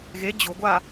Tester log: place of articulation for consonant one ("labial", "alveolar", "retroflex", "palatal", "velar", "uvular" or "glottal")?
velar